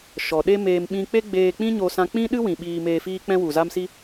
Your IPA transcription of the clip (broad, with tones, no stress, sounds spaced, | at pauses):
ʃ ɔ˨ ɗ e˦ m eː˧ m ɓ ĩ˧ k͡p e˦ ɡ͡b eː˧ k͡p ĩ˦ ɲ o˧ s ã˧ k͡p ĩ˦ ɗ ɨ˦ w ĩ˨ ɓ iː˧ m eː˧ f iː˦ k͡p ɛ̃˦ w u˨ z a˦ m s i˦